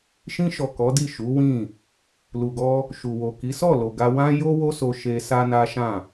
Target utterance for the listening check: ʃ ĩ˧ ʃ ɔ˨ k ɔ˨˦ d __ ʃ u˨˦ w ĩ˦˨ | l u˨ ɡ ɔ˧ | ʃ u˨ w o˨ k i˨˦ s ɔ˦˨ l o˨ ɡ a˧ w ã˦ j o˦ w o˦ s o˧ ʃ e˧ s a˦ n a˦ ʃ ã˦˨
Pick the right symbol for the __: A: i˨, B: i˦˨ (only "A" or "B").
B